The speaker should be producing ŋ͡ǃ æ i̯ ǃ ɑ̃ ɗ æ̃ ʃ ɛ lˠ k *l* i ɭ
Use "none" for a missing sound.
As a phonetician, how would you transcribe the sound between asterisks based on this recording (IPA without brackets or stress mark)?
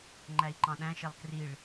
r